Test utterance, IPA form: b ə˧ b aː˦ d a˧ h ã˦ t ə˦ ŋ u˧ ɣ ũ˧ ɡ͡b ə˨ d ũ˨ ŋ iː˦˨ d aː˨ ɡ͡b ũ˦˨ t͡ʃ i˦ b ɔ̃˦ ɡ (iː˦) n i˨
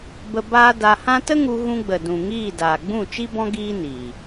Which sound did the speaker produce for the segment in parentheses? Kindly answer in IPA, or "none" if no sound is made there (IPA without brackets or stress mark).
iː˦